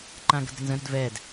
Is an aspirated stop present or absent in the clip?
absent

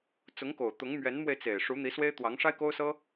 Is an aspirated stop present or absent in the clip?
absent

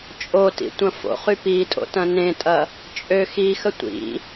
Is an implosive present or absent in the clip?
absent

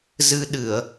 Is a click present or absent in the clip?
absent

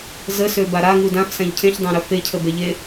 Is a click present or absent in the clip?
absent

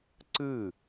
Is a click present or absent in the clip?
present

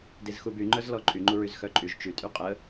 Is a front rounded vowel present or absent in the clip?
present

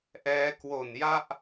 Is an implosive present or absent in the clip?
absent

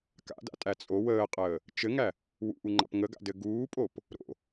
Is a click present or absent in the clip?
present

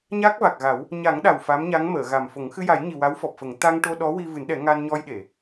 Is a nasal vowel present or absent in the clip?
absent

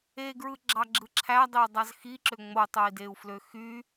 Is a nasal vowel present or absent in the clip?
absent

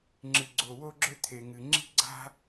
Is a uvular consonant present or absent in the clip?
absent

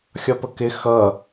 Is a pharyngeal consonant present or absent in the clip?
absent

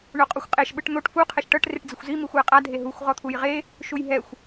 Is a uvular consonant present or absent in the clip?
present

